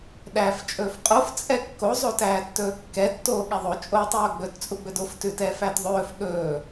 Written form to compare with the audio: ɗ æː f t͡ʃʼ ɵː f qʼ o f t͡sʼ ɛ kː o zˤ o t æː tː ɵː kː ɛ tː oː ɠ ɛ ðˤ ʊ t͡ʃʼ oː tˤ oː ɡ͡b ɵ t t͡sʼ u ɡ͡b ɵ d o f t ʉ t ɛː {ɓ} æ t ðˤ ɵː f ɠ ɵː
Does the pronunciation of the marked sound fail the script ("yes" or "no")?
yes